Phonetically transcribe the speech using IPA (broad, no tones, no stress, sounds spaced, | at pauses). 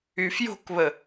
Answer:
y f j o̤ k β ə